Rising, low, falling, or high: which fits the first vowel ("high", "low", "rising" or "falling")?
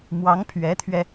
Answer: rising